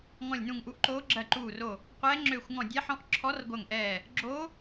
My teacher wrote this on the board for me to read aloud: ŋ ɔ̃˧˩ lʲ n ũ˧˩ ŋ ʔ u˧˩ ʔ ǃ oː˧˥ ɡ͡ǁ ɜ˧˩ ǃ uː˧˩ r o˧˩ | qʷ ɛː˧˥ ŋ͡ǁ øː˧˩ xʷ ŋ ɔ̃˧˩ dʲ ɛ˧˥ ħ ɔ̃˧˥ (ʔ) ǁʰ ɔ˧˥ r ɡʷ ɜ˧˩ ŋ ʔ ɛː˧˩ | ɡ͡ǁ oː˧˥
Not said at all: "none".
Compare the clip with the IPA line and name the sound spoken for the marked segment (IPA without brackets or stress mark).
ʔ